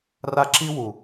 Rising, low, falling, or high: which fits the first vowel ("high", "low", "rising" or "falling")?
high